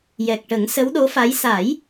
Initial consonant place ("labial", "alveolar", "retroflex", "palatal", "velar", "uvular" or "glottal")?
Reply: palatal